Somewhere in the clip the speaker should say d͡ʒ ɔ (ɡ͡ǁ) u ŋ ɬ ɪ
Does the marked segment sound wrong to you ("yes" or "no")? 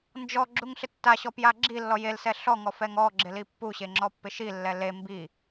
no